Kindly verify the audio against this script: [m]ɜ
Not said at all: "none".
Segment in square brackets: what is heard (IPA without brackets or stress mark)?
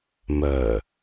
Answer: m